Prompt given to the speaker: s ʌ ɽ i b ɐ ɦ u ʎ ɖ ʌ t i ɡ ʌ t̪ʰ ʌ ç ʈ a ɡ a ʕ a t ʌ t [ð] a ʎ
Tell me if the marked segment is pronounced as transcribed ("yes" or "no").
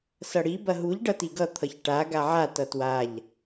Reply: no